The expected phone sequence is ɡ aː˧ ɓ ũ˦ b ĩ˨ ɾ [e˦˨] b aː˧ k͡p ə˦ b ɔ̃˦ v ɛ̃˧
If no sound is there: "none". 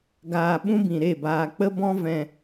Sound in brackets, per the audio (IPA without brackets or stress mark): e˦˨